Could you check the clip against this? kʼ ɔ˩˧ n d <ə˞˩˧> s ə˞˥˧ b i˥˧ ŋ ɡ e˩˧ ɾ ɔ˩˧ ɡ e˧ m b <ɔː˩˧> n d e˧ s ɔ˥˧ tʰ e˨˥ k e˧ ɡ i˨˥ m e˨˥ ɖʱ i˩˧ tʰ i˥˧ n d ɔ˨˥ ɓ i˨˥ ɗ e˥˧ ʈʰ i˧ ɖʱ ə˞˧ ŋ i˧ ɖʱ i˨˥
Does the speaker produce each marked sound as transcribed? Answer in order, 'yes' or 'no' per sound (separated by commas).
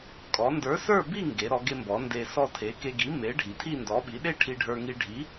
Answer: no, no